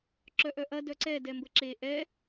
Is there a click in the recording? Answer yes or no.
yes